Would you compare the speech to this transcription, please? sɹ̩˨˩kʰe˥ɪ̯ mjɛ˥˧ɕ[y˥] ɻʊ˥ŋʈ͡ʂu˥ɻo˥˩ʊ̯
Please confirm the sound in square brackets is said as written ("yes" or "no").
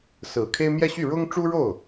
no